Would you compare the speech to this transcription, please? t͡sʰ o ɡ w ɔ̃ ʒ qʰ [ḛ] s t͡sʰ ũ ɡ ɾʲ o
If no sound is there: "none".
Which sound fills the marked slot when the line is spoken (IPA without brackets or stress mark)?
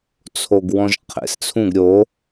ḛ